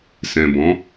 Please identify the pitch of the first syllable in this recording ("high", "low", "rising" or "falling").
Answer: low